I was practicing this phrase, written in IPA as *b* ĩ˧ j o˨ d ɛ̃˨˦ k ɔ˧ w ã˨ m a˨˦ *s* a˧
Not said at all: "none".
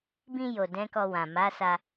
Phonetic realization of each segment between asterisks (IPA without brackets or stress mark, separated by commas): b, s